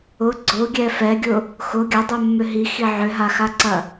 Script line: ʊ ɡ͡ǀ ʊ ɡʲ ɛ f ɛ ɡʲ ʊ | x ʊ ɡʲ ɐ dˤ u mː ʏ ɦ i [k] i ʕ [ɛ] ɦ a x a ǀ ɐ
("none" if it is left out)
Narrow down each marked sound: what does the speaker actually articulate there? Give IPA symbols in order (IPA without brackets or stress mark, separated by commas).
x, ʏ